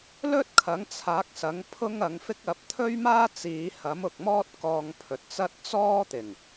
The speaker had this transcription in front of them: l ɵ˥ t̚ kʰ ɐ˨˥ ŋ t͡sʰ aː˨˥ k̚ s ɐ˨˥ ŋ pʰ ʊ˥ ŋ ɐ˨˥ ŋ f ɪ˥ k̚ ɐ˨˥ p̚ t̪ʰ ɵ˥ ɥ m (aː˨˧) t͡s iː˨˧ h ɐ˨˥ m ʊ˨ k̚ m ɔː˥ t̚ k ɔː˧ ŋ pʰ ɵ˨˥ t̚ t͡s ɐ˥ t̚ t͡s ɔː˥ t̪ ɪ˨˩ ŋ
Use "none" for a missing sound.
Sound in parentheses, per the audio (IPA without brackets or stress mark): aː˥